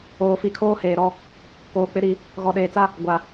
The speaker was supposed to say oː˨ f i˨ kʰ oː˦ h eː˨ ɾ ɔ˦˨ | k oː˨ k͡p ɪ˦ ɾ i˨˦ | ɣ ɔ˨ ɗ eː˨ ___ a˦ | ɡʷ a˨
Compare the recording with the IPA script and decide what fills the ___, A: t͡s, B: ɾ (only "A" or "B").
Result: A